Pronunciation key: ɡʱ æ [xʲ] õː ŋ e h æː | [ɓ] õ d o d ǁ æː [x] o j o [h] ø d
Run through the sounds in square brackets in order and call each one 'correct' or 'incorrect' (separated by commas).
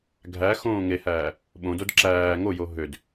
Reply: incorrect, correct, incorrect, incorrect